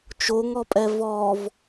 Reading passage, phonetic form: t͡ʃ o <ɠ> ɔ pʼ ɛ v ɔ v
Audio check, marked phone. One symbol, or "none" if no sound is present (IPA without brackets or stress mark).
ŋ